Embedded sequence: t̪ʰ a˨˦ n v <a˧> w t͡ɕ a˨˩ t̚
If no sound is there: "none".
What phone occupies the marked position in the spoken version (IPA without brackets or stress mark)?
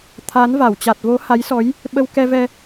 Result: a˧˩